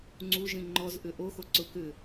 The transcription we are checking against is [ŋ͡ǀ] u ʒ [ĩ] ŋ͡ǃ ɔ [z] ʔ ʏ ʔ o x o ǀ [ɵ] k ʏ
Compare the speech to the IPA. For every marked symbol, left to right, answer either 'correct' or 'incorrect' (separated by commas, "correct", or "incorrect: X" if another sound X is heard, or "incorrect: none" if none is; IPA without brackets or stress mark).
correct, correct, correct, incorrect: ʊ